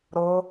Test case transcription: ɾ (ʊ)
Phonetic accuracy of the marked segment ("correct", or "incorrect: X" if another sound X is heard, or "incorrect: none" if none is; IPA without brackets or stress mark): correct